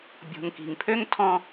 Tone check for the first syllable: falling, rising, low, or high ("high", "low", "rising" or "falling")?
low